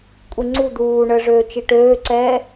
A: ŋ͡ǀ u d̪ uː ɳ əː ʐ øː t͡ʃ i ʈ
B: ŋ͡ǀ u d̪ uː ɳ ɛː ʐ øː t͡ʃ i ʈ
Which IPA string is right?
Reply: A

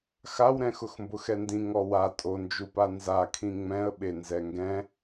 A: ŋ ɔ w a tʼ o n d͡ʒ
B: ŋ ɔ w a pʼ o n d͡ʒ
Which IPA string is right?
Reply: A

